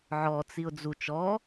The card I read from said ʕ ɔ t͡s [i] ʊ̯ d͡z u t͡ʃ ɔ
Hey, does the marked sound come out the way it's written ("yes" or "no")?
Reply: yes